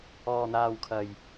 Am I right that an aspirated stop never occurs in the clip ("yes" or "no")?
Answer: no